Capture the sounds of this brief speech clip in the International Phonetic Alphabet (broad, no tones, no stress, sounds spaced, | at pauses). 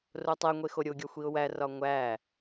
r o tˤ e ŋʷ e x o ɾʲ o ɡʲ ɒ xʷ i ʊ̯ w æ r ɒ ŋʷ æ